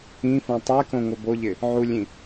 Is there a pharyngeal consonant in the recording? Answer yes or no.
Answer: yes